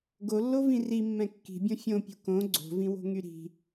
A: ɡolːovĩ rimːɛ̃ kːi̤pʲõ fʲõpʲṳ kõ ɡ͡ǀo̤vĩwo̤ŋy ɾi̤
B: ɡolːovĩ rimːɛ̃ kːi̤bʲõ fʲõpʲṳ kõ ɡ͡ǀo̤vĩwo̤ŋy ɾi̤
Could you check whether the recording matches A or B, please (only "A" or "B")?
B